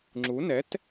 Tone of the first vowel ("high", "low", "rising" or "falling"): rising